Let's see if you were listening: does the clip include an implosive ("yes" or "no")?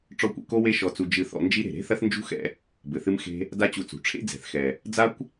no